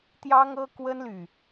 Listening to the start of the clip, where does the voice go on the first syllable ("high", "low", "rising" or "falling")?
high